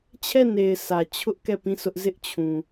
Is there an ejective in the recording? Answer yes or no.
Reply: no